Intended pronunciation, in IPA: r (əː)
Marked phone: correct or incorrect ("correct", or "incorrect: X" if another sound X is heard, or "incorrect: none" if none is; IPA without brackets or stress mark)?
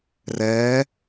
incorrect: ɛː